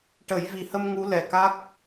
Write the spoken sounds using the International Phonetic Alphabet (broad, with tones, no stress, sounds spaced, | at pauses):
ʈ ə˨˩˦ j v i˨˩ h ə˧ m ŋ u˧˥ l ɛ˨˩ k a˦˥ k̚